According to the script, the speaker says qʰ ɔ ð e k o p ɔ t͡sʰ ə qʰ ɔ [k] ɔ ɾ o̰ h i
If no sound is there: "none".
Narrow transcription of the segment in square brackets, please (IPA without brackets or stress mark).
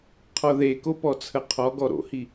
ɡ